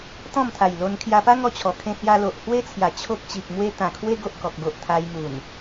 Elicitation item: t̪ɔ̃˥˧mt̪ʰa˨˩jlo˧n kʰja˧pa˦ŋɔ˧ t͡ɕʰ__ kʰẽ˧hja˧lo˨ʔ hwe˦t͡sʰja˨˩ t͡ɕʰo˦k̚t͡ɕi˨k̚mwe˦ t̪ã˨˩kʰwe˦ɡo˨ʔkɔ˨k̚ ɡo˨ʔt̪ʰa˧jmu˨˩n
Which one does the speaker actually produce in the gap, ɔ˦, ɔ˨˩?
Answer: ɔ˨˩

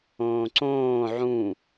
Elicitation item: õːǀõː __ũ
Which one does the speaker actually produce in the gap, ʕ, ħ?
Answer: ʕ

